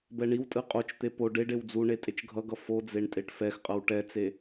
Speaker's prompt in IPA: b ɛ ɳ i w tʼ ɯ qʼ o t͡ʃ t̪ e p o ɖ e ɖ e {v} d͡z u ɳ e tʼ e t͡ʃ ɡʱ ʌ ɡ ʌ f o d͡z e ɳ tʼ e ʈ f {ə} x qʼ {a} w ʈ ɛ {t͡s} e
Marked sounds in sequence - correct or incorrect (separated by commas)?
incorrect, incorrect, incorrect, correct